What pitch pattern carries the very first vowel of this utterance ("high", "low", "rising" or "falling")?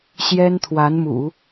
high